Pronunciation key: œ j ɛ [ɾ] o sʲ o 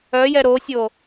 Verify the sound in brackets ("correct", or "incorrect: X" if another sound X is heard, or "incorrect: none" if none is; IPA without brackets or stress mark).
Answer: correct